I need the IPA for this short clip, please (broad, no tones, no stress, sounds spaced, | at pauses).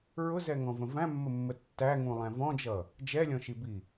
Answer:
ɹ ʊ z ɛ ŋ ɔ̃ v ə̃ v æ̃ mː ə mː ə tː æ ŋ ũ lˠ æ̃ v ɔ̃ d͡ʒ ʌ | d͡ʒ ɛ lʲ ɔ̃ ʃ i b i